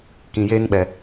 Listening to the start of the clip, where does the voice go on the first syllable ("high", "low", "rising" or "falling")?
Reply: low